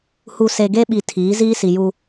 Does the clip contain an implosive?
yes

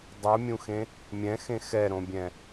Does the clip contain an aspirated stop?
no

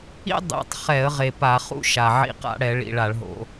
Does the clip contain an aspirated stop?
no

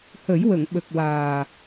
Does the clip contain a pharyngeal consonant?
no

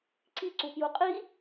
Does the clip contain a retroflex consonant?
no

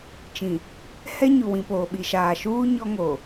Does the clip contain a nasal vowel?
yes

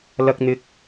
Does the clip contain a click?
no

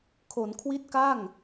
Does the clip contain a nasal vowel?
no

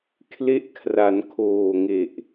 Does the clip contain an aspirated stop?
yes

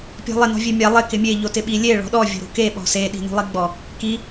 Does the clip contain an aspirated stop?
no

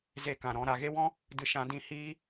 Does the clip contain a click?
no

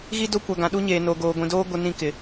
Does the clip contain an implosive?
yes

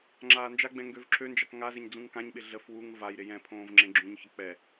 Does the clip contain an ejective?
no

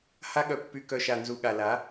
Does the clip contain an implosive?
yes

